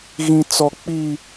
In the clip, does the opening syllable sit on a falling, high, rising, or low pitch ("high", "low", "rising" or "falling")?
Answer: high